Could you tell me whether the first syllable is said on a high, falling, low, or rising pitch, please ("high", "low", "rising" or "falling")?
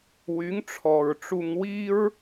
rising